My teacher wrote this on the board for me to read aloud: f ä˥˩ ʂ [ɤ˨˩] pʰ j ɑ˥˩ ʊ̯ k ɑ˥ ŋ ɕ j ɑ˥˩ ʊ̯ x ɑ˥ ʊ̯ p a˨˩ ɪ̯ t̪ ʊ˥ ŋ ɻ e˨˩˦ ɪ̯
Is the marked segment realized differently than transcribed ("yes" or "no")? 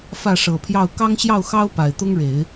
no